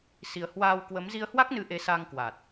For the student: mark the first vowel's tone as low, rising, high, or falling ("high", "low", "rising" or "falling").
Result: low